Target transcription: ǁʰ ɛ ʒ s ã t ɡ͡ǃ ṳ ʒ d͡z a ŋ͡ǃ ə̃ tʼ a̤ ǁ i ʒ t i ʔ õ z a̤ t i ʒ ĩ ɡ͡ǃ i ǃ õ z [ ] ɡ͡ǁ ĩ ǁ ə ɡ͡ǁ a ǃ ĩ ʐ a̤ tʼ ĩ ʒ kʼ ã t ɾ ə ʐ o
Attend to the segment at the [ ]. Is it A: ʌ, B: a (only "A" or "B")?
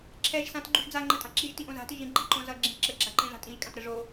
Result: A